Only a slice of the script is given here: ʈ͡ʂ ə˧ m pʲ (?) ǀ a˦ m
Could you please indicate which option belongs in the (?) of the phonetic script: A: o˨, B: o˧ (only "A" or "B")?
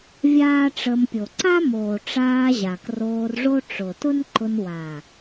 A